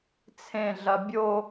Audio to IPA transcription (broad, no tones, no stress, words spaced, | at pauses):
t͡sʰẽɮɐ bʲo